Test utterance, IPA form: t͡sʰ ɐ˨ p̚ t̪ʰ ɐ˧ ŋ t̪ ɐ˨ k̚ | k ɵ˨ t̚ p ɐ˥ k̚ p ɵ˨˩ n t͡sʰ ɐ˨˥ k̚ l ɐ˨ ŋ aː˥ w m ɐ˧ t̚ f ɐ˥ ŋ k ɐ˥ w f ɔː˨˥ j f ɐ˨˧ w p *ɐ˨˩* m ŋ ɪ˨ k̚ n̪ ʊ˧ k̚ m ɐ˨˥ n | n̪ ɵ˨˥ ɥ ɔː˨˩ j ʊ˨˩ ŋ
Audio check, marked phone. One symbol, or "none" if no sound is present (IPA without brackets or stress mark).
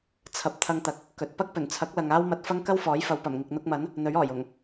ɐ˨˩